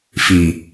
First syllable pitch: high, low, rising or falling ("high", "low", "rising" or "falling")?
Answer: low